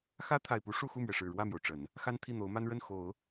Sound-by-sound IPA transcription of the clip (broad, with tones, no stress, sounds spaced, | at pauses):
x ä˥ t̪ʰ a˨˩ ɪ̯ p u˧˥ ʂ u˥˧ x u˥˩ m ɥ ɛ˩ ʂ ɻ̩˨˩ ɻ w ä˥˩ m j o˩ ʊ̯ ʈ͡ʂ ə˨˩˦ n | x a˥ n t̪ʰ i˥˩ n̪ o˧˥ ʊ̯ m a˥ n ɻ ə˥˩ n x o˨˩˦ ʊ̯